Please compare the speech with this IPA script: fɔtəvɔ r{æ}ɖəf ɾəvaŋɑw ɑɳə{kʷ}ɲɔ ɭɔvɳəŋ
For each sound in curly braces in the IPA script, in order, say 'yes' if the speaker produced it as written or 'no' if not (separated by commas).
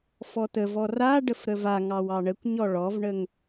no, yes